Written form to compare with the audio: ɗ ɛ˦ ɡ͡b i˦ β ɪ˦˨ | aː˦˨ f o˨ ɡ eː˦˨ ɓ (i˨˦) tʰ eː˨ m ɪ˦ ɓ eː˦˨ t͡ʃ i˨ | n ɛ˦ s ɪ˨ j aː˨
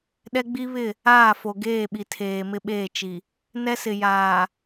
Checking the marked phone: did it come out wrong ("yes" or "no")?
yes